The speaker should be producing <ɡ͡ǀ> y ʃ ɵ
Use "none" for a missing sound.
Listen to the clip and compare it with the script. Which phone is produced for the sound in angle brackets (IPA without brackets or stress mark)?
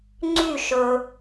ŋ͡ǀ